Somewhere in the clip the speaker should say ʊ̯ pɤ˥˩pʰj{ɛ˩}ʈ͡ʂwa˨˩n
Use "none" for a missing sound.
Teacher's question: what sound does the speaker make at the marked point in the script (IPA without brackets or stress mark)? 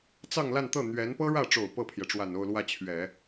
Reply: ɛ˩